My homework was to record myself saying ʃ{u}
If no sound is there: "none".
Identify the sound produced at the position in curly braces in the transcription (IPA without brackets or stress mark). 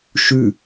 ʉ